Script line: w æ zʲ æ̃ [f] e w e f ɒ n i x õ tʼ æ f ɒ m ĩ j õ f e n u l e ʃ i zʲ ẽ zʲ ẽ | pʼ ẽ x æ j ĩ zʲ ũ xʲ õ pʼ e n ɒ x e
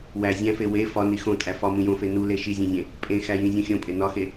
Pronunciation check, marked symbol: correct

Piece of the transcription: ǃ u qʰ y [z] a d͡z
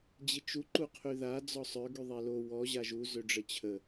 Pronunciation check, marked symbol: incorrect: ð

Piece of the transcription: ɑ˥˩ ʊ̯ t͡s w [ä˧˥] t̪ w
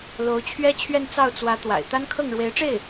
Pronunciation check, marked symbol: correct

